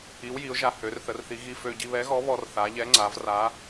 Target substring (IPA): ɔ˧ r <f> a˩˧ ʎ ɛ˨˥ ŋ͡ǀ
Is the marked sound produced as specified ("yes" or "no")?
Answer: no